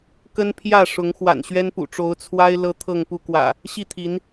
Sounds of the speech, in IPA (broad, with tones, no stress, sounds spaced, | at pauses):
k ə˦ n pʰ j ä˥˨ ʂ ʊ˨˦ ŋ x w a̰˨˩ n ɕ ɥ ɛ˦ n p ṵ˨˩ ʈ͡ʂ o˨˦ ʊ̯ t͡sʰ w a˦ ɪ̯ l ɤ˦ t̪ʰ ɤ˥˨ ŋ p u˥˨ k w ä̰˨˩ | ɕ i˥˨ t̪ʰ i˨˦ n